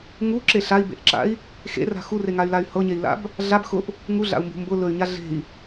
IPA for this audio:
ŋ u ǁ e ɬ a i̯ b ḛ ʔ ǁ a̰ i̯ | x ḛ r a̤ x u r e ŋ a y̯ l a y̯ h ɤ ɲ e i̯ l a̰ b | ɮ a b x ʊ ʔ | ŋ u ɮ a̰ u̯ m b ṳ m b ʊ l ɵ y̯ ɲ a ɮ e̤ i̯

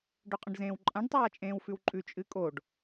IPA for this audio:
ɖ ɵ qʼ ɐ̃ ɖ z ẽː w ǃʼ ã ɖ tˤ aː t͡ʃʼ ẽː w f ʉ w ǃʼ ʉ t͡ʃʼ ɨ kʼ o ɖ

